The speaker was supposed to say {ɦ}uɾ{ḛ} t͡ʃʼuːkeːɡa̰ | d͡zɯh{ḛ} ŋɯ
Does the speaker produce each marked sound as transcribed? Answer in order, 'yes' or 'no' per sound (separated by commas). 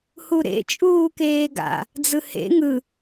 no, yes, yes